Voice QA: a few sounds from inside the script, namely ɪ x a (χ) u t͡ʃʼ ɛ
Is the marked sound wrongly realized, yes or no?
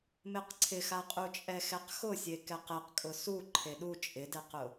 yes